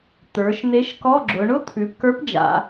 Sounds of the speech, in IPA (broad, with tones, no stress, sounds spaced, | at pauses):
t̪ ə˞˩˧ ʃ n̪ e˧˥ ʃ k ɔ˧˥˧ ɡ͡ǁ ʊ˩˧ ɳ ʊ˥ t̪ʰ ʉ˩˧ p k ə˞˧˥ p d͡ʒ a̰˩˧